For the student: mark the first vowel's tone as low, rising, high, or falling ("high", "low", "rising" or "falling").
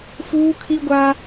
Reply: high